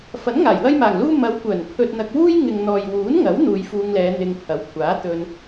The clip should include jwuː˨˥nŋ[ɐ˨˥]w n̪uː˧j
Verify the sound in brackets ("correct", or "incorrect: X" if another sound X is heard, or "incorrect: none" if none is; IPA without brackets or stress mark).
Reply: correct